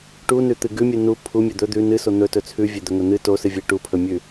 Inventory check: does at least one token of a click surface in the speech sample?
no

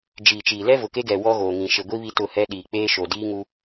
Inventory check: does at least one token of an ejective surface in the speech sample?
no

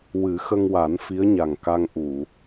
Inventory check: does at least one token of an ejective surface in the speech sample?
no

